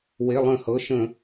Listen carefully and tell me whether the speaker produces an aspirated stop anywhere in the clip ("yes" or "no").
no